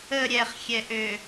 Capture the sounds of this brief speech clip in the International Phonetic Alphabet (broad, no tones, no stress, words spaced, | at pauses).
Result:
ə ɾʲɛχxʲɛʔø